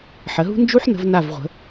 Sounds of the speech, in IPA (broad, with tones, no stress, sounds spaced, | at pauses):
ħ ə˩˧ ɦ ṳ˥ n d͡ʒ u˥ ħ n ə̤˧ v n a˧˩ v ʁʷ ə̤˩˧